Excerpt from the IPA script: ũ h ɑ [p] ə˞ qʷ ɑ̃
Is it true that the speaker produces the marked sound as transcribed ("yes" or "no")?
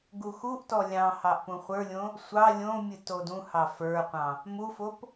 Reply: no